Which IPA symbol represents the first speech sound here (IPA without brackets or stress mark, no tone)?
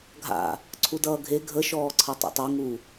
ɡʱ